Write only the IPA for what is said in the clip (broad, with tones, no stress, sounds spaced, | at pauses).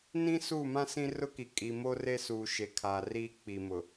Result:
n ĩ˦ s u˦˨ m ã˦ s ĩ˦ r ʊ˦ k i˨ kʼ i˨ m o˦ r e˦ s uː˨ ʃ e˨ kʰ aː˨ r iː˦ k͡p i˨ m ʊ˨